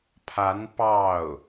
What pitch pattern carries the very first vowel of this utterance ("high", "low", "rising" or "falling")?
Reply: rising